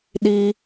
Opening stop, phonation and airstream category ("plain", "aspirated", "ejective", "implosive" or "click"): implosive